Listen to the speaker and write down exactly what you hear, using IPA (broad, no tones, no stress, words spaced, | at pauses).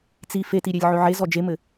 t͡si fetiɾʲelʲ ʕøʕe zɔd͡ʒemɘ